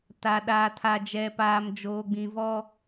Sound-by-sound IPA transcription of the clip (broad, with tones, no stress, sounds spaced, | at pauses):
t a˨ ɗ aː˨ tʰ a˨ d͡ʒ ɛ˨ p aː˨ m d͡ʒ oː˨ ɡ͡b ĩ˨ v ɔ˦